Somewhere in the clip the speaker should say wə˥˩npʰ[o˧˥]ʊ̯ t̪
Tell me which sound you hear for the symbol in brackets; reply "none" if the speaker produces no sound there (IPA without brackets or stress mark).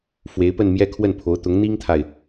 o˧˥